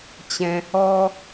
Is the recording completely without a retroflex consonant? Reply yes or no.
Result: yes